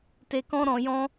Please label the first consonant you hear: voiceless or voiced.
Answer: voiceless